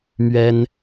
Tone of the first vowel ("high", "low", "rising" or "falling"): high